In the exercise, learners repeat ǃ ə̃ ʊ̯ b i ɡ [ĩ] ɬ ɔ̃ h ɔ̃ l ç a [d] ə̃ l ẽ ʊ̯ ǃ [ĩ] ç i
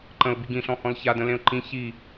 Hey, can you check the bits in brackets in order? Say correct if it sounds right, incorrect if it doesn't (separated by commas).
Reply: correct, correct, correct